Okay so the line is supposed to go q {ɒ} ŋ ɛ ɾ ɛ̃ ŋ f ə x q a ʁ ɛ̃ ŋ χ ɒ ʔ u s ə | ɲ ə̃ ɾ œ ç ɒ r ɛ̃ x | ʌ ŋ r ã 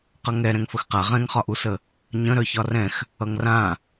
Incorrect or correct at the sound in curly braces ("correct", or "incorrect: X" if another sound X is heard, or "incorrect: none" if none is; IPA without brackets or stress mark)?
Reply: incorrect: ʌ